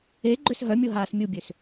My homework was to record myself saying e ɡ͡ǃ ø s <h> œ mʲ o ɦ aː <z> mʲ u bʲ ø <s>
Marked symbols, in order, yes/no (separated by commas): no, no, yes